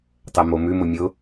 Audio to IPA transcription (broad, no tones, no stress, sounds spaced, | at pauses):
tˤ ɛ m o m ʉ m ʊ mʲ ʊ